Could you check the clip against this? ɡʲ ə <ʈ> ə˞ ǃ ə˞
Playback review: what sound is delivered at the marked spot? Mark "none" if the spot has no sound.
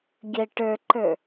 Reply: ʈ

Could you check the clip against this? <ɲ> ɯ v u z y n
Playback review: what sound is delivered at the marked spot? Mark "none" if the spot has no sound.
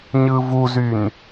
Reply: ɲ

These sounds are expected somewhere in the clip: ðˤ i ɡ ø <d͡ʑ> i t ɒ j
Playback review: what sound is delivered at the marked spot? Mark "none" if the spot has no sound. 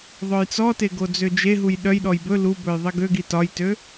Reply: ɡ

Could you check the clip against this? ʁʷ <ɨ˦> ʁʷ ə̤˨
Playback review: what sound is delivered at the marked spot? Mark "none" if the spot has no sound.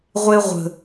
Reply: e˦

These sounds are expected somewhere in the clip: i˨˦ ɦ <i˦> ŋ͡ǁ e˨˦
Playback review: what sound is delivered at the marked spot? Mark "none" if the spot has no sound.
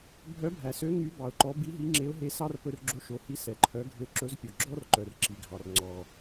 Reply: i˨˦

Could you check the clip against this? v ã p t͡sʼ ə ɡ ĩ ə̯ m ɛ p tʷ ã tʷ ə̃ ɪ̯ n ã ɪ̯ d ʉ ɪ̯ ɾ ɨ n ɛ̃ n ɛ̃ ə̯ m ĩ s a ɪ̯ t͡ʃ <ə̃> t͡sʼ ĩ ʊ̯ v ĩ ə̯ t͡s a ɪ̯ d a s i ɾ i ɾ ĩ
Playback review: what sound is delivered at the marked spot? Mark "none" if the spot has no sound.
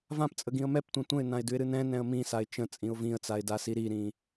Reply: ə̃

